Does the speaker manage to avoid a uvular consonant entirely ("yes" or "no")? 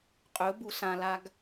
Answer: no